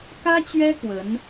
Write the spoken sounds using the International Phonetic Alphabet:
k ä˥ t͡ɕ ɥ ɛ˥ k w ə˧˥ n

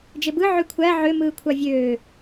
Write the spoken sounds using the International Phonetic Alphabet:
d͡ʒ e b ɯ ʕ y kʷʰ æ ʕ ø m ɯː kʷʰ ɑ vʲ øː

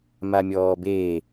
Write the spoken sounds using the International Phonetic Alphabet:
m a mʲ ɔː b eː

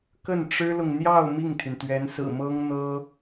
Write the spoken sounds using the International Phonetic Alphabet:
k ə˥˩ n ʈ͡ʂ ɻ̩˥ l ʊ˨ ŋ n̪ j ɑ˥˧ ʊ̯ m i˥˩ ŋ t̪ʰ y˩ n t̪ ɥ ɛ˧˥ n s ɹ̩˨˩ m ɤ˥ ŋ n̪ ɤ˥

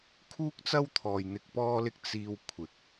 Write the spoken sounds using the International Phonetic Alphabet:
kʰ uː˥ k̚ t͡s ɐ˥ w t̪ʰ ɔː˨ j n̪ ɪ˨ k̚ p ɔː˧ l ɪ˧ k̚ t͡s iː˧ w kʷʰ ɪ˨ k̚

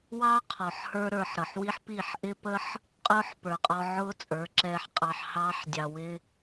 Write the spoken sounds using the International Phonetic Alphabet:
w ɑ˦ qʰ ɔ˨ ħ h ə˞˧ ɾ ə˞˨ ħ ɾ ʌ˨ ħ w i˦ ħ p i˦˨ ħ ʔ ɪ˧ p ə˧ ħ | qʼ ʊː˦ ħ p ə˞˨ qʼ ɔ˧ ʕ ʊː˦ t͡sʼ ə˞˨˦ ǁ ɛː˧ ħ qʼ ɑ˧ ħ h ɑː˧ ħ dʲ ɑ˨ w ɪ˧

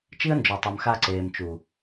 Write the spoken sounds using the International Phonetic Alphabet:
t͡ʃ i˦ ə̯ n d͡ʒ ɔ˨ tˤ œ˨ m x a˧ ǀ eː˨ m t͡ʃ u˨

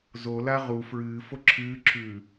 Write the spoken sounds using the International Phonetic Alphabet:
z o l a ʁ u f ɹ ɨː f o ǁʰ ɨː ǁʰ ʉː

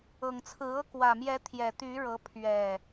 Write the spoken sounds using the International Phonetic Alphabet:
ɤ˨˩ ŋ t͡sʰ ɹ̩˨˦ ɤ˦ k w ä˨˩ m j ɛ˨˦ t̪ʰ j ɛ˨˩ t̪ y˨˦ ɻ ɤ˨˦ pʰ ɥ ɛ˨˩

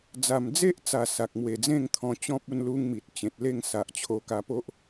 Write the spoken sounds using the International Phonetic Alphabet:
d͡z a˨˩ m d͡z e˦ ʔ t͡s a˨˩ s a˨ k̚ m w e˨˩ d͡z ẽ˥˧ ŋ t̪ʰ ɔ̃˧ t͡ɕ ɔ̃˦ p̚ u˧ n l u˦ ŋ m i˨ t̚ t͡ɕ ẽ˨ t̚ l e˥˧ ŋ s a˨ ʔ t͡ɕʰ o˧ k a˧ p o˦ ʔ

